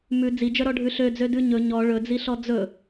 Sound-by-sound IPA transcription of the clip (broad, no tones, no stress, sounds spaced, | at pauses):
m ʉ d͡z i d͡ʒ œ ɾ ɔ ɖʱ ʉ ɬ ø d͡z ø d ʉ ɲ ɵ ɲ ɔ ɭ ɵ d͡z i ɬ ɔ d͡z ɵ